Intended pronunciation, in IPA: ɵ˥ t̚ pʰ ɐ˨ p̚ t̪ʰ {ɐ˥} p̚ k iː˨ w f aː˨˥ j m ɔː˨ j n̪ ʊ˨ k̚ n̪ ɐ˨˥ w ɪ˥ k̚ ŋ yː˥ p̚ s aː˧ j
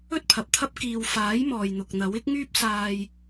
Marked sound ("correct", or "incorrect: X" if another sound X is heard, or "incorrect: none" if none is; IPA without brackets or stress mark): correct